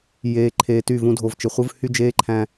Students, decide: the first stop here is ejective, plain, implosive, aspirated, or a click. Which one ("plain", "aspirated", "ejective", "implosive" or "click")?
click